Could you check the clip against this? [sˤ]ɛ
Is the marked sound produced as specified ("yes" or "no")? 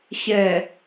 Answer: no